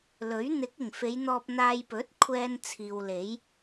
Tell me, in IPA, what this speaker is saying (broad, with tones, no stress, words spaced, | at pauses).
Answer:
lɵ˨˥ɥ n̪ɪ˨˥k̚ɪ˨˩ŋfe˨˧j n̪ɔː˧p̚n̪aː˧j pɵ˨˥t̚ kʷʰɛː˧n t͡sʰiː˨wle˨˥j